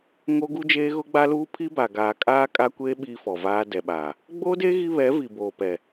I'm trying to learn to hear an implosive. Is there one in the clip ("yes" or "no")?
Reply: yes